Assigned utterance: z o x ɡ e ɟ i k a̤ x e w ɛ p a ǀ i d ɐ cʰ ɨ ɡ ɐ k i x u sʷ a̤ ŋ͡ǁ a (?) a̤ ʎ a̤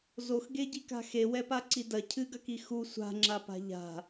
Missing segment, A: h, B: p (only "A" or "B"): B